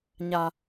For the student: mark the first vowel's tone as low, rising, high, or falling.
low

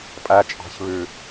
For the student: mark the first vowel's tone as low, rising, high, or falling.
low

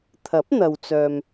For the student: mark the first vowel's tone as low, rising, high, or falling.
rising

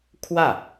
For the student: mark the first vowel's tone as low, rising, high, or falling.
falling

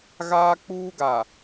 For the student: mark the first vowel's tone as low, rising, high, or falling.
high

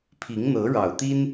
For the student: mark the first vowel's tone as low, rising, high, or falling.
rising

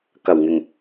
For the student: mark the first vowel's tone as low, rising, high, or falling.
low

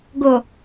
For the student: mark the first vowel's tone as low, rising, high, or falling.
low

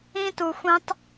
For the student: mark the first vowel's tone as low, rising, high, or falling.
high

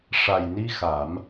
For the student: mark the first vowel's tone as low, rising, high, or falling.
low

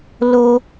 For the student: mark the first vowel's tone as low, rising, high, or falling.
high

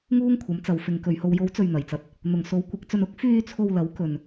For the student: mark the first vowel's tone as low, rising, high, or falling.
high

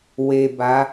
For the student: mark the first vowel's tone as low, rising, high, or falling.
low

